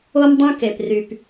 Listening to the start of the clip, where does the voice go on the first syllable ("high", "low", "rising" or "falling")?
high